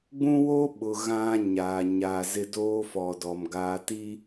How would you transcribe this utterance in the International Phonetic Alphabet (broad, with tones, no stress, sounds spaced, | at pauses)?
ɡ͡b ũ˦ w o˦ ɓ ʊ˨ ɣ ã˦ ɲ aː˨ ɲ a˨ z ɪ˦ d oː˦ f ɔ˨ d ɔ˨ m ɡ aː˨ t i˦